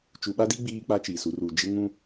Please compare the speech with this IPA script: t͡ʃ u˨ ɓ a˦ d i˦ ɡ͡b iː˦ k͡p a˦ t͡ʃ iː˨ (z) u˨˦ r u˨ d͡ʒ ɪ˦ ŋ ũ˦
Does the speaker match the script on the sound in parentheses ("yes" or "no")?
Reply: no